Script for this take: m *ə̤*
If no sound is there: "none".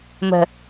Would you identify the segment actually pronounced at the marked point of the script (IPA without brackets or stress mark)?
ə̤